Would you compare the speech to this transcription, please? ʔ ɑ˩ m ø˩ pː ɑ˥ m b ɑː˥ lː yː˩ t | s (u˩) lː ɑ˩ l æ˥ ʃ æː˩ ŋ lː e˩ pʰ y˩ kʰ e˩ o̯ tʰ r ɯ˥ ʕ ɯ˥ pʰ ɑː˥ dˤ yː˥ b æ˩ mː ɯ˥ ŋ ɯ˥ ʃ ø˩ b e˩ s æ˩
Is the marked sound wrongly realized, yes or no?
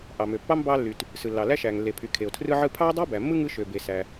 yes